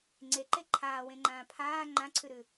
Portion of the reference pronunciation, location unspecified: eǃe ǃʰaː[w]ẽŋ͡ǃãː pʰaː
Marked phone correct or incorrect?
correct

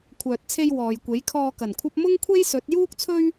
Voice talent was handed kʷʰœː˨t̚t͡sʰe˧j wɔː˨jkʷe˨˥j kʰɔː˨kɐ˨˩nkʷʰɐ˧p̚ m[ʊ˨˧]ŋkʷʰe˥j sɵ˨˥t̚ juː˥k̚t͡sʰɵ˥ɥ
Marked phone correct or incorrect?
incorrect: ʊ˥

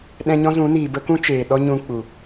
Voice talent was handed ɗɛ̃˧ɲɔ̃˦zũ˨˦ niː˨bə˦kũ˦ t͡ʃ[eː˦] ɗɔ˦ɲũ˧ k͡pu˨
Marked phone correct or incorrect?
incorrect: eː˨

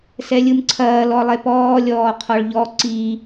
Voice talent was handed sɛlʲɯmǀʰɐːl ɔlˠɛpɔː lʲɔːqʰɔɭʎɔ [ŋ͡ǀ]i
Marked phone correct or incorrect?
incorrect: ǀ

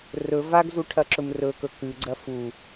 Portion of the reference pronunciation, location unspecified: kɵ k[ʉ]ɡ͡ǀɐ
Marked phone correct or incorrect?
correct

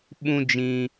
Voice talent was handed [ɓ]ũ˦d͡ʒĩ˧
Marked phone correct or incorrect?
correct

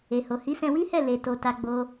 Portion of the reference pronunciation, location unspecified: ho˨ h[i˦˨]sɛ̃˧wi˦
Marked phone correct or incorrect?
incorrect: i˨˦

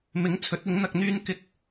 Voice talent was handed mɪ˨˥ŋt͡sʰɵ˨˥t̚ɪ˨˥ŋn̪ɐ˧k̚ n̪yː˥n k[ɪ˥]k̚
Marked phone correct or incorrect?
correct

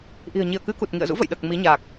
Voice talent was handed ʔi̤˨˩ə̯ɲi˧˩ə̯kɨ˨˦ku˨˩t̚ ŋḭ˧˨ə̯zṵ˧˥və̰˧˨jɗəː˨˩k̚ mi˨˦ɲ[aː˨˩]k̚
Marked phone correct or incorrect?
correct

